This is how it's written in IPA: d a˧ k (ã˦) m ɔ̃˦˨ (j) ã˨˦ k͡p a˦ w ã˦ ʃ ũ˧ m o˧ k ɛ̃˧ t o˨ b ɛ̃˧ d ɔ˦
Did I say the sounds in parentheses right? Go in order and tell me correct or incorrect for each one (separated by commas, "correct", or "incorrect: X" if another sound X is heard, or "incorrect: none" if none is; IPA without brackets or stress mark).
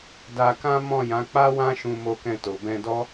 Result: correct, correct